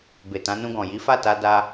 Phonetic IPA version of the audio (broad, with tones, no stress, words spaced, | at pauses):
be˨tã˨˦nũ˧ɡɔ̃˨ ji˨˦fa˦˨ta˧ da˧